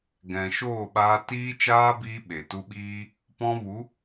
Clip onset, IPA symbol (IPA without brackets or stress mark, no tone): ɡ